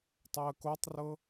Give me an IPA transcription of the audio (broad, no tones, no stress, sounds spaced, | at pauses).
tˤ ɛ ə̯ k o tˤ r ɤ